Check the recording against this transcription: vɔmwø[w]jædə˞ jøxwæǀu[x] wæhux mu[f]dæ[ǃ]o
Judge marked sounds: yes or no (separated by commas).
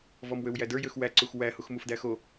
yes, yes, yes, no